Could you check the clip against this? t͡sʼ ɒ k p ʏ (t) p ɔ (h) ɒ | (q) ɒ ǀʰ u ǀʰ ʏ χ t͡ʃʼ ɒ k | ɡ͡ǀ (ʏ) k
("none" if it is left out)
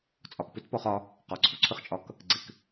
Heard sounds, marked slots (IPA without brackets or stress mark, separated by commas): t, χ, q, ɪ